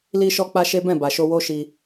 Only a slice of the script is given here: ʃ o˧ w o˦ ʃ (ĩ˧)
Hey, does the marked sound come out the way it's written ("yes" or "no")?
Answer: no